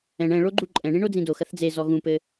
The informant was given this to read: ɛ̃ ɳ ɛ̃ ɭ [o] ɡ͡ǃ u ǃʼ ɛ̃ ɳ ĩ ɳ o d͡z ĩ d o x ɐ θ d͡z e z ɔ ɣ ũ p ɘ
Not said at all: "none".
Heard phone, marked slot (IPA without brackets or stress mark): o